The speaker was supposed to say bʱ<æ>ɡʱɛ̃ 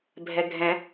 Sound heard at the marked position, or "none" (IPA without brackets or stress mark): ɛ